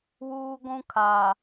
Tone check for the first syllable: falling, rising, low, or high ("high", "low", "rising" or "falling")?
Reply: high